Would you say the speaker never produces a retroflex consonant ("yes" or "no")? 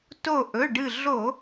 no